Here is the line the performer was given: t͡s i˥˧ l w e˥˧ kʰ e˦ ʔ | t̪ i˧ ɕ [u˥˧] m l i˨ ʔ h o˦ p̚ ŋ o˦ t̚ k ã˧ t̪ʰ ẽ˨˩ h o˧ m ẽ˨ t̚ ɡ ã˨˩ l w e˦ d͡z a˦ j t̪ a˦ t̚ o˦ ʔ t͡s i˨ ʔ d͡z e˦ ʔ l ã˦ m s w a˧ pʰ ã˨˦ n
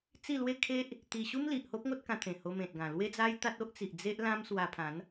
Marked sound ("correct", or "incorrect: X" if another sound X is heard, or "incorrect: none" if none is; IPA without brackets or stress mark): incorrect: u˦